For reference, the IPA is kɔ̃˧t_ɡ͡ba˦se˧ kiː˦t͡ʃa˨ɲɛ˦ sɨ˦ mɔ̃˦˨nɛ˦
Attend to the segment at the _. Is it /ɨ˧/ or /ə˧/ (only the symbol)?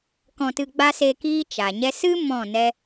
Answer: ɨ˧